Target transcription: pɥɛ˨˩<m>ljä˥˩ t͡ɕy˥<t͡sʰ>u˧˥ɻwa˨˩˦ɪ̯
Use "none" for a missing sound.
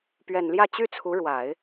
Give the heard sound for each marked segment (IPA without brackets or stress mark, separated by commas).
n, t͡sʰ